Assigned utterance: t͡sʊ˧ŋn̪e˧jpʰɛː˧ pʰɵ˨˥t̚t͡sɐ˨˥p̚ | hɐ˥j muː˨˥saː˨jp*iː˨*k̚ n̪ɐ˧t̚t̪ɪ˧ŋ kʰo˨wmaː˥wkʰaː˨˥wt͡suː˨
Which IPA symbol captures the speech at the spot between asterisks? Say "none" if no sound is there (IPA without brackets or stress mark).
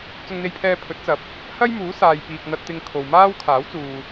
iː˨